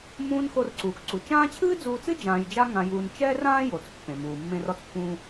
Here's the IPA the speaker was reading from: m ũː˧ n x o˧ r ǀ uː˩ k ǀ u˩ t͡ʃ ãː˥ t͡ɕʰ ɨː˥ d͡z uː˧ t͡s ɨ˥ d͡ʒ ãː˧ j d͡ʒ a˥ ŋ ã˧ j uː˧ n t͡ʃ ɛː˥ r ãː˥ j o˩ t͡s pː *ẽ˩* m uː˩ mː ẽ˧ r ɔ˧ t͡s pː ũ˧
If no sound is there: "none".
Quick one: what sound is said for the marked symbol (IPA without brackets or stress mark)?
ẽ˩